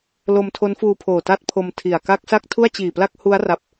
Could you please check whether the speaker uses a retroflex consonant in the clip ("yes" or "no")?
no